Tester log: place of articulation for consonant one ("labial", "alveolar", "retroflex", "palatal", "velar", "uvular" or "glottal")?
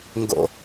velar